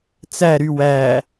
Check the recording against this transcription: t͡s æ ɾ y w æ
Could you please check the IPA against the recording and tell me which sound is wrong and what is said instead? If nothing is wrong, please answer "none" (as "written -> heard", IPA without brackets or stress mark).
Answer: none